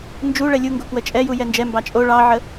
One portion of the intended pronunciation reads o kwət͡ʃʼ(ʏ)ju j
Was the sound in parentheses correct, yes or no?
no